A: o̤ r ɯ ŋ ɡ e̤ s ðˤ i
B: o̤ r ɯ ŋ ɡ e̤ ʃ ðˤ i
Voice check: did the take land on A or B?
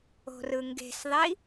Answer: A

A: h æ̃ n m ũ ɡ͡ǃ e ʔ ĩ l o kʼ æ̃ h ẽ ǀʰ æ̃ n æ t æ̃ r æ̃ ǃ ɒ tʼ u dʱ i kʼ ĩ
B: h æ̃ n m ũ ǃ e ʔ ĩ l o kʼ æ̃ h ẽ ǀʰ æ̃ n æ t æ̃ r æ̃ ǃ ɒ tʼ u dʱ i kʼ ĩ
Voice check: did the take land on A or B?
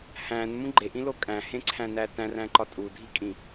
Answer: A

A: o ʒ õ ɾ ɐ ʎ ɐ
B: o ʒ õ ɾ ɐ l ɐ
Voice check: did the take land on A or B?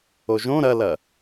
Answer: B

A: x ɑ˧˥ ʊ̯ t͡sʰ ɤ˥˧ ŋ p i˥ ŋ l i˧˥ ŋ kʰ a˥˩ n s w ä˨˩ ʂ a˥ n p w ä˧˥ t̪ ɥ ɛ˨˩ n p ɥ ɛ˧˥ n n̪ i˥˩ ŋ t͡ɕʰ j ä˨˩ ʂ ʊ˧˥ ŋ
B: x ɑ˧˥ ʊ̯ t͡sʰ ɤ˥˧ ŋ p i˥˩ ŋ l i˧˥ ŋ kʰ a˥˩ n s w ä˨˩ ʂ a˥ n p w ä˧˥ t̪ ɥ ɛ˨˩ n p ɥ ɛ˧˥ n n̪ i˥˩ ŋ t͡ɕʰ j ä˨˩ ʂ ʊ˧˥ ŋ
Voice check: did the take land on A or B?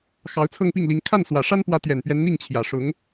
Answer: B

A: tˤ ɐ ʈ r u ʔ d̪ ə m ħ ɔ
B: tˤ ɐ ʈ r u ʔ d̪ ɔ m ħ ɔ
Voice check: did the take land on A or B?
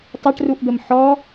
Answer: A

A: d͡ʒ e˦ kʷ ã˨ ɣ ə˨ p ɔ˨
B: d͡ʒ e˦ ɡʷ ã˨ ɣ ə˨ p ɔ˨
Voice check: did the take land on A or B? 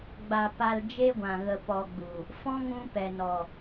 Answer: B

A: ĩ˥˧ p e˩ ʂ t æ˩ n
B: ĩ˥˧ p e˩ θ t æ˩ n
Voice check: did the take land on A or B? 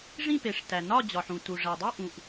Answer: A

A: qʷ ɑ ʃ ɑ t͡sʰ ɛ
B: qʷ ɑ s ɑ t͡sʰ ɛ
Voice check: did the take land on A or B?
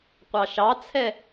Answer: A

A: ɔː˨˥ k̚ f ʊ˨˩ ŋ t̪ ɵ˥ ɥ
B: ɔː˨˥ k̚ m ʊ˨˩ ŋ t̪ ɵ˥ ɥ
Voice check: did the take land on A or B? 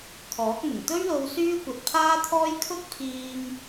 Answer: B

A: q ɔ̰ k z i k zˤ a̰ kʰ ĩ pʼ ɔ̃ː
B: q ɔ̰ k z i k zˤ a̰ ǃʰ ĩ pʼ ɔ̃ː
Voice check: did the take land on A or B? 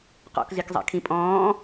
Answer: A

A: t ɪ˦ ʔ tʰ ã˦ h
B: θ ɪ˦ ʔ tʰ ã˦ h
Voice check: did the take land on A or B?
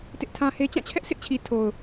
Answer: A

